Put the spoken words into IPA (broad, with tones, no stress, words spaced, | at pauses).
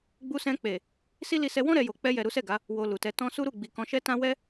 ɡ͡bu˧sɛ̃˧k͡pe˨ | si˦li˧ sɛ˧wɔ̃˦ ɾɛ˧jo˨ k͡pɛ˧jɛ˨ ɾu˨˦sɛ˦˨ɡa˨˦ | wo˧lu˨tɛ˧ tɔ̃˧su˦ɾu˦˨ ɡ͡bi˨kɔ̃˧ʃɛ˦tã˦ wɛ˦